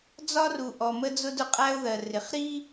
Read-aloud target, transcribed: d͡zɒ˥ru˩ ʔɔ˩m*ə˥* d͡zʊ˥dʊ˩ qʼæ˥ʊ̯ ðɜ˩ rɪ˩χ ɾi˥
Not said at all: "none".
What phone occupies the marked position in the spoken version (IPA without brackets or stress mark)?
ə˥